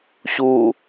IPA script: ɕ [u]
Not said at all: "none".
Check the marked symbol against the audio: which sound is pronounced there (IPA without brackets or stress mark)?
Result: u